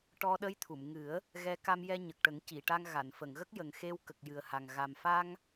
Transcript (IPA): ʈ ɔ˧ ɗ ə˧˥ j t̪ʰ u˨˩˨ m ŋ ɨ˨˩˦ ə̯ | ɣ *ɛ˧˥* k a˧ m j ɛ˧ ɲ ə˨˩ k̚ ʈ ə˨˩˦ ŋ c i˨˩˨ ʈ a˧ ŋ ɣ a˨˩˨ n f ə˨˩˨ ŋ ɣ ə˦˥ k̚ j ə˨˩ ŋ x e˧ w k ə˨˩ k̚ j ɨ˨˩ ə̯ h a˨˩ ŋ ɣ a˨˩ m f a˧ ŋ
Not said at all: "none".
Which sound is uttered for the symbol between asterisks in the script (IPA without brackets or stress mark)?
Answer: ɛ˧˥